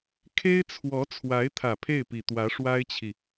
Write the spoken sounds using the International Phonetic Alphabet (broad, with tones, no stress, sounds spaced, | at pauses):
kʰ e˥ ɪ̯ t͡sʰ w ɔ˧˥ t͡sʰ w a˧˥ ɪ̯ t̪ʰ ä˨˩ pʰ e˥˩ ɪ̯ p i˨˩ t̪ w ä˧˥ ʂ w a˥ ɪ̯ t͡ɕʰ i˨